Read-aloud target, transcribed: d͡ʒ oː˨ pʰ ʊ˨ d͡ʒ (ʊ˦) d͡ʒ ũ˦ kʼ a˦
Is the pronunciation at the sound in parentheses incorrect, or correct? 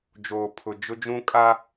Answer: correct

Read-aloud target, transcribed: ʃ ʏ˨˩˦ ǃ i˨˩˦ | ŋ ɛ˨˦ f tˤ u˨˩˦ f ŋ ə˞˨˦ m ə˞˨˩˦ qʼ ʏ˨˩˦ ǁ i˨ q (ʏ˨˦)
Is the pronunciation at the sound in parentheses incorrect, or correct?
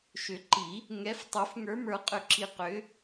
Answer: correct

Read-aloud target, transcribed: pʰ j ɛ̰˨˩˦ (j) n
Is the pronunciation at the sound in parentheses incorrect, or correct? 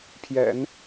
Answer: incorrect: none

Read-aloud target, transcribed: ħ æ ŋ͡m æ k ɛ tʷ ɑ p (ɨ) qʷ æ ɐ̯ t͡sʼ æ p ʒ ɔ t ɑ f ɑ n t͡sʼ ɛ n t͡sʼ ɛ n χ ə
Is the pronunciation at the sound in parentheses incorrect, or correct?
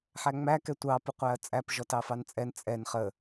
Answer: incorrect: ɪ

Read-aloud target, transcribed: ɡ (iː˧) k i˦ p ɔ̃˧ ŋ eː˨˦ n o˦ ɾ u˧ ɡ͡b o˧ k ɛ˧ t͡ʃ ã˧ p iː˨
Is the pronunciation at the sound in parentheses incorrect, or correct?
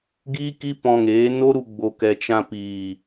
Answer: incorrect: iː˦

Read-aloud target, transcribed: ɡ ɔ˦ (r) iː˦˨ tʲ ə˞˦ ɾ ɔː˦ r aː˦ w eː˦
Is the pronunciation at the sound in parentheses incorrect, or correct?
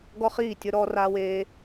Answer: incorrect: χ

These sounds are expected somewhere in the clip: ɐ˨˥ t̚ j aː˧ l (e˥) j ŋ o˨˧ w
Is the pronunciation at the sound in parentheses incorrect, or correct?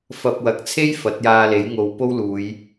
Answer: incorrect: e˨˥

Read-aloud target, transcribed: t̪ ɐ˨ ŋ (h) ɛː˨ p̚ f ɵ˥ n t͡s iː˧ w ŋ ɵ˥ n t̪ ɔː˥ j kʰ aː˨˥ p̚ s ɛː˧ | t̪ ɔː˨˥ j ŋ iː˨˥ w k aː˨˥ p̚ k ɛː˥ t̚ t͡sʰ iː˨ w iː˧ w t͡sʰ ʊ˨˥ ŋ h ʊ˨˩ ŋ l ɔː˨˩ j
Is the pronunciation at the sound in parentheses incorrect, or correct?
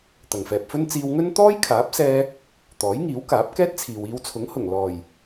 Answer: incorrect: f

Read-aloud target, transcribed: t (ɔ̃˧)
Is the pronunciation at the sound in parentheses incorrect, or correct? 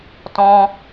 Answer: correct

